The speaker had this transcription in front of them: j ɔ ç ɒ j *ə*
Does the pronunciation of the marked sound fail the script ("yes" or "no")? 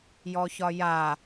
yes